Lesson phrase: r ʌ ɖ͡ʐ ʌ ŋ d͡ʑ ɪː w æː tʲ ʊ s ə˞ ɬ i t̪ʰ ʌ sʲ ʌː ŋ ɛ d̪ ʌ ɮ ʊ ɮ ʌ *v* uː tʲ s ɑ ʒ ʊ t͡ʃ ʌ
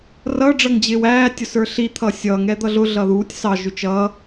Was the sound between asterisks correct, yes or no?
no